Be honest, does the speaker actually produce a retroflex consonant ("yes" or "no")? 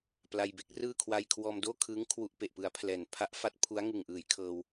no